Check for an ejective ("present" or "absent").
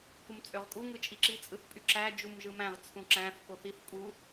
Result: present